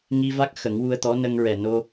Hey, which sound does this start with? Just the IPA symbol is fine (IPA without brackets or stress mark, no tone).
ŋ